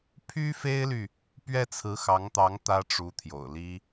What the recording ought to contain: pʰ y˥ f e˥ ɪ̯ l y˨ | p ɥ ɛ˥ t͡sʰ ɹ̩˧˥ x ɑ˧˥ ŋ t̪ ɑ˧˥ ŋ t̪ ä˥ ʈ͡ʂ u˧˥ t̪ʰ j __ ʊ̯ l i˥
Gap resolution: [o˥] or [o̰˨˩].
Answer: o̰˨˩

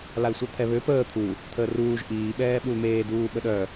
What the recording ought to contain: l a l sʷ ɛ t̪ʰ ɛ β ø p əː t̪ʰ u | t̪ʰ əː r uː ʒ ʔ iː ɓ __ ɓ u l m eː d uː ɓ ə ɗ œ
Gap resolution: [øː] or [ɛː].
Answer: ɛː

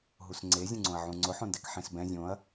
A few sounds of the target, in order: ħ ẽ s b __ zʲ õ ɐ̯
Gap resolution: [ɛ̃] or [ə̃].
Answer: ɛ̃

